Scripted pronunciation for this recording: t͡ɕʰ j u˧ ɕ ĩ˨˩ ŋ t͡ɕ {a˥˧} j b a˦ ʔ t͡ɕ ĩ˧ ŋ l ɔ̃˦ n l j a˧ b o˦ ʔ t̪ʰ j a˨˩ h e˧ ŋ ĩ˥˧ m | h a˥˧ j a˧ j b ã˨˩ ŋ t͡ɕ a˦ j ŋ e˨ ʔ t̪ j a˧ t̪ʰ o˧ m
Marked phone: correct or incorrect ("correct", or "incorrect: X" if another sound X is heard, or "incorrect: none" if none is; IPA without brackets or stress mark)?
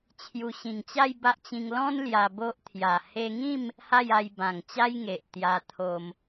correct